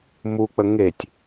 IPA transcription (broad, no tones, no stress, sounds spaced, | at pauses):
m u k͡p ə ŋ e tʲ